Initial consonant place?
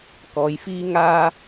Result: velar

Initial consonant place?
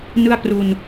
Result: alveolar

